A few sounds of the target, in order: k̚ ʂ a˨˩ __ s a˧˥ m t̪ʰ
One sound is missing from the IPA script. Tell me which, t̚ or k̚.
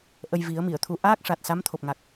t̚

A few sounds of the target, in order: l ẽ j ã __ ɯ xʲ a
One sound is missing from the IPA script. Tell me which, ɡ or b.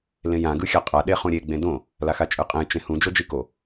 ɡ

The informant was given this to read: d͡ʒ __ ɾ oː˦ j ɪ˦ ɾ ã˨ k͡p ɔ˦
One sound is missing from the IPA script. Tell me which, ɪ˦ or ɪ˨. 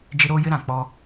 ɪ˦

